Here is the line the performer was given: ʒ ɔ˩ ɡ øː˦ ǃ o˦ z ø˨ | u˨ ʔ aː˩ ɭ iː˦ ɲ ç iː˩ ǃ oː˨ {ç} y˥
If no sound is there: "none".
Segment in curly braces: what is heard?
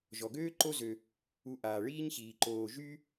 ʒ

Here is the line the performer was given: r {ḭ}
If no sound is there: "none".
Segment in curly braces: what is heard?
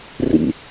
ḭ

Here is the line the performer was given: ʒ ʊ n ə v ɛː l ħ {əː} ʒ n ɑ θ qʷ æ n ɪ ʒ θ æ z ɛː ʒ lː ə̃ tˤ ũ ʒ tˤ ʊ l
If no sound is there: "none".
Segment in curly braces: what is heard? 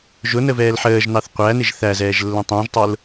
əː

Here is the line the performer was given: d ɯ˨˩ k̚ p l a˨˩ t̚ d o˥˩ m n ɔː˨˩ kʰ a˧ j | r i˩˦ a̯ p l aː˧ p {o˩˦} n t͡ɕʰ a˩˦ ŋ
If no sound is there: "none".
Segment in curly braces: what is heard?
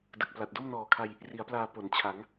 o˩˦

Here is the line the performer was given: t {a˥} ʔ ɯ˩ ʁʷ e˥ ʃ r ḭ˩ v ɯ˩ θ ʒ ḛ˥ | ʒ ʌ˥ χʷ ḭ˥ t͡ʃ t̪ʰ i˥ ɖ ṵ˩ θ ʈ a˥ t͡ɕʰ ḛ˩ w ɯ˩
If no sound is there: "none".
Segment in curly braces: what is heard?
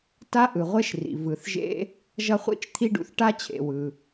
a˥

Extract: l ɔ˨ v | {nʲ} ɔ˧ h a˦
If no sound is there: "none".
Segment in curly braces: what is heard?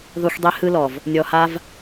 nʲ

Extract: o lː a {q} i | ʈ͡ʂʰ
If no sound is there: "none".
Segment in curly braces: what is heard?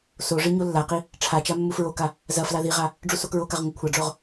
q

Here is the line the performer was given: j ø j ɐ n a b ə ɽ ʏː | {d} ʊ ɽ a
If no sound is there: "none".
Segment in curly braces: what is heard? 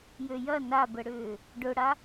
ɖ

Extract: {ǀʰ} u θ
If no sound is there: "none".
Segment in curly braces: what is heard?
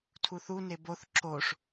tʰ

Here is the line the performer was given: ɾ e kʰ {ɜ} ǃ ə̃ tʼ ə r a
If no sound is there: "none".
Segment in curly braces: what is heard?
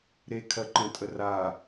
ɜ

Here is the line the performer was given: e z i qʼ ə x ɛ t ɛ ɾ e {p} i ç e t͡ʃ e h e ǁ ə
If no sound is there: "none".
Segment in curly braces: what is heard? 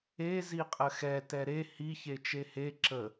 h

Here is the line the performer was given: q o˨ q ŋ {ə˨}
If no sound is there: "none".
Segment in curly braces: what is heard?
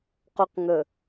ə˨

